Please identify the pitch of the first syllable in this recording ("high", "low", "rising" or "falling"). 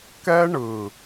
high